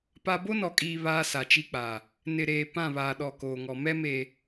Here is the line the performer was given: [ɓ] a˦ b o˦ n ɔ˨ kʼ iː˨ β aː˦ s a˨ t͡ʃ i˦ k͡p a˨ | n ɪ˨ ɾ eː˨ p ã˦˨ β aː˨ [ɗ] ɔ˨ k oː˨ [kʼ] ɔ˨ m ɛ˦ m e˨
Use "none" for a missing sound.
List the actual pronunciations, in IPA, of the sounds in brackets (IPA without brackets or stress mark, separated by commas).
p, ɗ, ŋ